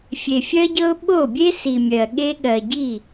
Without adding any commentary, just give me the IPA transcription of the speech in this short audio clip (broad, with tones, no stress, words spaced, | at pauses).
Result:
fʲe˨fʲɜ˦ɟɤ˦ʊ̯ ɓo˦˨bʲe˦si˨ mʲɜ˨ ɠe˧ɠɜ˨ ɟi˦˨